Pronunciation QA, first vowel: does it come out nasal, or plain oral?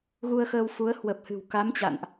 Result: oral